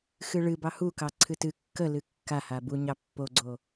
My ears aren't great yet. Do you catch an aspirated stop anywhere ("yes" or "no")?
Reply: yes